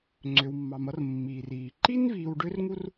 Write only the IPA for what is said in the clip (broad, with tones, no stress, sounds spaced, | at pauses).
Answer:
ŋ͡ǀ ø˩ w mː ɑ˩ m ʌ˧ r mː i˩ r iː˩ ǃ i˥ n v iː˧ w ɖ ø˥ r ŋ u˥ r